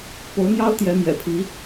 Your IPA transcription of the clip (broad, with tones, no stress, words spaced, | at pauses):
po˧˥ʊ̯n̪jɑ˥ʊ̯ t̪jɛ˧˥ mjɛ̰˨˩pʰi˧˥